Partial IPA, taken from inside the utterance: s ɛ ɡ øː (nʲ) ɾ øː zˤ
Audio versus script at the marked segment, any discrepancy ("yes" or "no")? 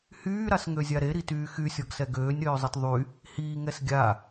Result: no